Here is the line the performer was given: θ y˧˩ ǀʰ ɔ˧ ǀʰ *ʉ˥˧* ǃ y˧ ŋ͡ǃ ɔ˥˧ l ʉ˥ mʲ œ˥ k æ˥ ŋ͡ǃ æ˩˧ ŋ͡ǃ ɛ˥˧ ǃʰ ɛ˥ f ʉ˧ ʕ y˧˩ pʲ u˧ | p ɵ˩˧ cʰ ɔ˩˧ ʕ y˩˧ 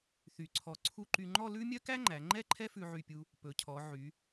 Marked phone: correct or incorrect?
incorrect